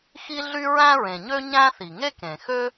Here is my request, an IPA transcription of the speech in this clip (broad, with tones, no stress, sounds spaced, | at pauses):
x i˥ ɮ y˥ ɹ æ̃˥ ɹ ẽ˩ ɲ ø˥ ɲ æ̃˥ θ i˩ ŋ e˥ k ẽ˩ x ø˥